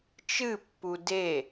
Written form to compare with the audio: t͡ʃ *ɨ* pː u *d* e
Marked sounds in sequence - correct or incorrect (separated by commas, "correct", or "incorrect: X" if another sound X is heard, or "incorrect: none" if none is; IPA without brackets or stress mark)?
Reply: correct, correct